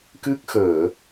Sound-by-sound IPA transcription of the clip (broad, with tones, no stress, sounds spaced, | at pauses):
k ɨ˦˥ k̚ x əː˧˩˨